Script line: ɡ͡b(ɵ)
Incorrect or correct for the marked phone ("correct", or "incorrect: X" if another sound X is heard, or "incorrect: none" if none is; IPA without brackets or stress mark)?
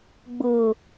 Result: incorrect: ʊ